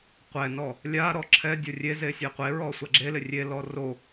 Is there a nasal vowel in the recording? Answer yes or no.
no